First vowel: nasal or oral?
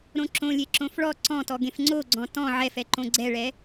nasal